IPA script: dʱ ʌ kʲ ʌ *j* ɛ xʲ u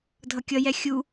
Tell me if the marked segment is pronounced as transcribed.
yes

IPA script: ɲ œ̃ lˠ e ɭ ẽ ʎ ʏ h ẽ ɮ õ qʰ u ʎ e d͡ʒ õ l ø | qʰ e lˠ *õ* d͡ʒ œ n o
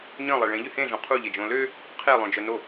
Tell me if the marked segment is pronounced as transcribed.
yes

